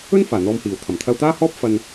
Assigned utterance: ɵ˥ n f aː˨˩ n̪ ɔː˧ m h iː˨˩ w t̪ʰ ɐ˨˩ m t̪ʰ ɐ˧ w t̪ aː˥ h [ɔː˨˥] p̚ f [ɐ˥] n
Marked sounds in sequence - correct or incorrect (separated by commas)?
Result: incorrect, incorrect